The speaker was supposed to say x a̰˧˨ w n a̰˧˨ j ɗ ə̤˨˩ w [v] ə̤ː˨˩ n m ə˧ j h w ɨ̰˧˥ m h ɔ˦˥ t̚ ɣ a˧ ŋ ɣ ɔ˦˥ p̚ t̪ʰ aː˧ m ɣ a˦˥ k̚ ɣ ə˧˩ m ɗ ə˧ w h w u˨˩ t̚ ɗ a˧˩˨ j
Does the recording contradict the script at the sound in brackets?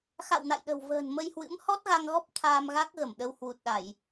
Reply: no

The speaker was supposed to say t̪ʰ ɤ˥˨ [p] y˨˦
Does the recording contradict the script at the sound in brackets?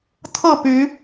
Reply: no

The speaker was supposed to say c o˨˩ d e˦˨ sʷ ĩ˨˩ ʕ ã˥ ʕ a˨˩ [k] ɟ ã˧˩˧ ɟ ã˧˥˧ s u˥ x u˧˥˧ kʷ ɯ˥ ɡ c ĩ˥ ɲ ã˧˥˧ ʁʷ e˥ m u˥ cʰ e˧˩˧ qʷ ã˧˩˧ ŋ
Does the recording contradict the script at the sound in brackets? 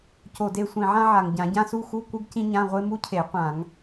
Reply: yes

